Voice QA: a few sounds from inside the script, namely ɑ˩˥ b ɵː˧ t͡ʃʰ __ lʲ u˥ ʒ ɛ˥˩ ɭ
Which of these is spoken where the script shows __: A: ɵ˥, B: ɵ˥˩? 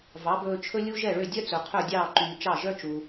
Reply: A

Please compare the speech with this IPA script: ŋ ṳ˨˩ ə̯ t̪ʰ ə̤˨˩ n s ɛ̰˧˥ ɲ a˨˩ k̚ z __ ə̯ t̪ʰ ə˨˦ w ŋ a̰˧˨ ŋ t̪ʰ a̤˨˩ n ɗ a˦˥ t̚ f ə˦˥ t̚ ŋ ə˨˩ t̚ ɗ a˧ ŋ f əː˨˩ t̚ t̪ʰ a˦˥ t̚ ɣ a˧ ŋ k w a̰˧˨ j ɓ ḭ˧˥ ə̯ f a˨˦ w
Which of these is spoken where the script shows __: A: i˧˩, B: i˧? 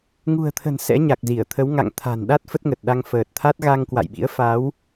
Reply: A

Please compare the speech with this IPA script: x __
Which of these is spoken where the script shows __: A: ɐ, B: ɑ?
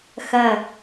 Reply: A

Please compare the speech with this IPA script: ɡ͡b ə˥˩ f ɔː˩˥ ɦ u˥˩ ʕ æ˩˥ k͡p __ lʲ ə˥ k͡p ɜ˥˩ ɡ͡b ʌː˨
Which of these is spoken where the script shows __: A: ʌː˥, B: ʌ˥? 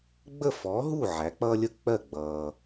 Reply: A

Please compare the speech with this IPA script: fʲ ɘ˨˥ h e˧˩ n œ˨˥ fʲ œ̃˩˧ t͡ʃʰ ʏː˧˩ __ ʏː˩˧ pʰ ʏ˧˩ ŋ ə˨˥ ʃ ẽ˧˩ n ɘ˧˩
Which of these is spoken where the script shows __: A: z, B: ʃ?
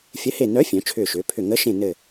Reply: B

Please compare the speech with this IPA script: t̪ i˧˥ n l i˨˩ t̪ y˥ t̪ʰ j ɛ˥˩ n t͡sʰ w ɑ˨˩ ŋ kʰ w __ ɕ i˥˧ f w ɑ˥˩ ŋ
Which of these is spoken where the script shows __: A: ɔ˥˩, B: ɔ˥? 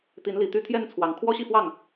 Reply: B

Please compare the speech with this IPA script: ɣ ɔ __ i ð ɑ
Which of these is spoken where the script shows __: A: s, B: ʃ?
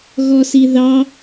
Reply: A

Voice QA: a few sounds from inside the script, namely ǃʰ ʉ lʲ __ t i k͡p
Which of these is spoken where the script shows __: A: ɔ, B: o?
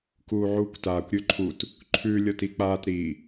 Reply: A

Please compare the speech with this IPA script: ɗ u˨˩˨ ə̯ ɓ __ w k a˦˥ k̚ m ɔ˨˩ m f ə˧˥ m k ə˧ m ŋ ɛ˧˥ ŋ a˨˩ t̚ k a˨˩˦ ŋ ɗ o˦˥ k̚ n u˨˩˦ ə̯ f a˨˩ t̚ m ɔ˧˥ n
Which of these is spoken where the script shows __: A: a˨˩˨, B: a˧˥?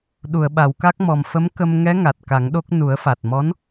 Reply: A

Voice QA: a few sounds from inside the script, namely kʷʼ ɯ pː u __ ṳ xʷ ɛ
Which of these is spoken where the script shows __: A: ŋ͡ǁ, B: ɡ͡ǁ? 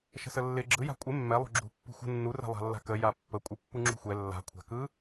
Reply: A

